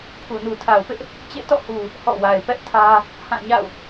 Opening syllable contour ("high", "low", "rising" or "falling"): low